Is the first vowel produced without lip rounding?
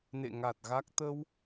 yes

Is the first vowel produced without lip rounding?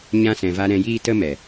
yes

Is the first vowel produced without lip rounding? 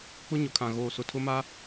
no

